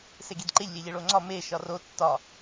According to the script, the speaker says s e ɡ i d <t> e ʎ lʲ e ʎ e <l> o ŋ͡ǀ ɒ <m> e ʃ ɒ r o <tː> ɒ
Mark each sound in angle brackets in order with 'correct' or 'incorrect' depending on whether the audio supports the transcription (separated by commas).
incorrect, incorrect, correct, correct